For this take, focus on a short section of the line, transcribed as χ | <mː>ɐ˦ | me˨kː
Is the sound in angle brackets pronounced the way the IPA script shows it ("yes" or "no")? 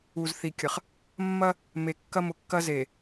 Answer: yes